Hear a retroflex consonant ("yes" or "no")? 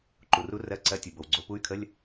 no